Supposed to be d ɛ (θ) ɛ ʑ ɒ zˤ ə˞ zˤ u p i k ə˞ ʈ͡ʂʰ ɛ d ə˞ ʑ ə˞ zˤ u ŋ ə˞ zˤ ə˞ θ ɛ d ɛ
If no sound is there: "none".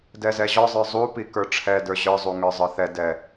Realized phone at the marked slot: z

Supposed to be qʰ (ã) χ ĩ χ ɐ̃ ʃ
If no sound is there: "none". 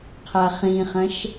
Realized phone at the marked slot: a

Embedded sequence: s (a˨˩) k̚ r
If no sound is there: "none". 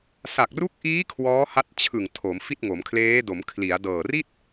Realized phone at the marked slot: a˨˩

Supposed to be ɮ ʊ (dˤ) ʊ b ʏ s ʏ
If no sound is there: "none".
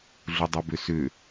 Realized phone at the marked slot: dˤ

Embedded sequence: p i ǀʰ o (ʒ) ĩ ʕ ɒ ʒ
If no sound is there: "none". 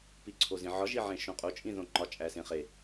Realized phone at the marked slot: z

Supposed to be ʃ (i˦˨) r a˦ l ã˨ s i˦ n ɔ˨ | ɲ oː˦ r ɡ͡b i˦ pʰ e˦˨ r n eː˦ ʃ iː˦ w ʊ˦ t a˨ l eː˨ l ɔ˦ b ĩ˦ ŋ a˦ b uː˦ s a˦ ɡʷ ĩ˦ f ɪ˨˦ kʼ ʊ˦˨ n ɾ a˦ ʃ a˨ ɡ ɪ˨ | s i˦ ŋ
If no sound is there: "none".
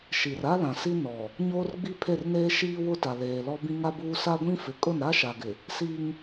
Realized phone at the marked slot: i˨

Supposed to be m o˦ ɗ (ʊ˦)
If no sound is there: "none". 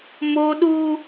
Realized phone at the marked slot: u˦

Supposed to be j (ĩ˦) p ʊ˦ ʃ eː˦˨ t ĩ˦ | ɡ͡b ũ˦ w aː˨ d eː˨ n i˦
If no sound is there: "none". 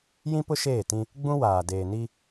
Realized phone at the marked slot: ĩ˦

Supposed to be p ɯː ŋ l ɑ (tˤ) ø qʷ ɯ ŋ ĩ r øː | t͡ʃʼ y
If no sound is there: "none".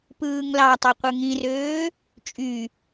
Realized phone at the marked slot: tˤ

